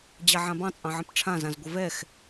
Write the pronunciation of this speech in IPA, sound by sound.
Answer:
d͡ʑaʕãbɑ̃ t͡sʼɑ̃ʕə̃pʈ͡ʂʰã zãzɡʷəvɛx

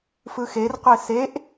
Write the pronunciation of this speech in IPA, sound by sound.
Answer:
fɯxerqʷe seʔ

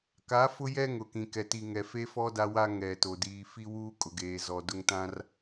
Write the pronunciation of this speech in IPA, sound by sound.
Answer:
ka˨˦fʊ˦jɛ˦ ŋʊ˨kĩ˨kɛ˨ ti˨ŋɛ˨fe˦fɔ˦ da˦wa˦ ŋɛ˨to˨ diː˨fi˦ wuː˦kʼʊ˨ɡeː˨ zɔ˨dʊ˦ŋ tã˦r

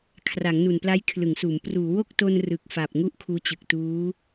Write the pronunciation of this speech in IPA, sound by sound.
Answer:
kʰra˩˦ŋnu˨˩npla˦˥j kʰlɯ˩˦ŋsuː˩˦m pruː˩˦wo˥˩k̚to˧n rɯ˨˩k̚fa˨˩p̚ŋu˦˥ʔ kʰuː˦˥t͡ɕɯ˨˩k̚tuː˦˥

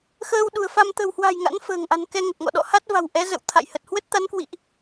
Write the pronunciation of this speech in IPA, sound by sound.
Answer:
xəː˧wɗṳ˨˩ə̯fa˧m t̪ə̤˨˩whwa̤˨˩j ŋa̰˧˥nfə̤ː˨˩ŋʔa̤˨˩n kɛ˧ ŋə˨˩t̚ŋɔ̰˧˨ɗɔ̰˧˨ ha˦˥t̚va̤˨˩w ʔɛ˨˦zə̰˧˨w t̪ʰa̰˧˨jhə˨˩t̚ hwə˦˥t̚t̪a˨˦nkwḭ˧˨ʔ

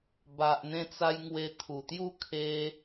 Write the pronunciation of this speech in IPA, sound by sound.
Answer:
ba˨ʔn̪ẽ˧t͡sa˧j ŋwe˧t̪ʰu˨˩t̪ju˥˧ kʰe˧

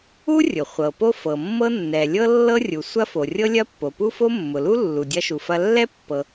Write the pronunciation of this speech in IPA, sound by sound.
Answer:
u˥rʲʊ˩ χʷɤ˩ po˥fɤ˩mːɤ˥ nːɛ˩lʲɤ˥ lːɤ˥rʲu˩sʷɐ˥ fo˩rʲɤ˥lʲɐ˥ pːo˩pu˥fo˥ mːʊ˩lu˥ lːu˩dʲɐ˥ʃu˩fɐ˥ lːɛ˥pːɤ˩

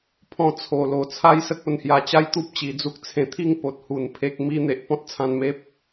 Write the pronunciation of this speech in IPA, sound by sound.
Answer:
pʰɔ̃˧t͡sʰo˨˩ lo˨˩t͡sʰa˦jsə˦k̚ o˧nhja˧t͡ɕa˦j t̪u˦p̚t͡ɕi˨˩d͡zu˦k̚ t͡sʰẽ˨˩t̪ʰi˥˧ŋ po˨t̚hu˨˩n pʰe˦k̚mi˦ n̪e˨ʔpɔ̃˦t̚t͡sʰã˧n me˦p̚

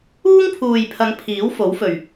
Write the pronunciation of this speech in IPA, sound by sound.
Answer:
uː˥ŋpʰuː˨jpʰɐ˨˧ŋ pʰiː˨˥wfo˨˥wfɵ˨ɥ

